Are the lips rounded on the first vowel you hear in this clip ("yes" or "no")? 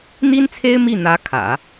no